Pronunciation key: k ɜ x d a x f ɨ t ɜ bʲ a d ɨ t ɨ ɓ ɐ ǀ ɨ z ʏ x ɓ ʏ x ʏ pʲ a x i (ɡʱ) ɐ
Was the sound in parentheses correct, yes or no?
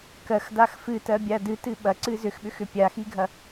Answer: yes